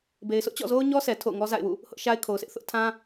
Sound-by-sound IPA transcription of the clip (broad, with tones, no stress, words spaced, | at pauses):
be˨ɪ̯sʰʊ˦ʔt͡ɕɔ̰˦˨ zo˦ʊ̯ɲɔ˦sʰɛ˨ tʰo̰˦˨ʊ̯ŋɔ˦za̰˦˨ɪ̯wṵ˦˨ | hʊ˦ʔʃa˦ɪ̯ kʰo˨ʊ̯sʰɪ˦ʔ θʊ˦ʔ tʰã˦